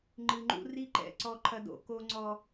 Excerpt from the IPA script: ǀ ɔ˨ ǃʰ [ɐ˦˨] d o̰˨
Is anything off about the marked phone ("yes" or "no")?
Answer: yes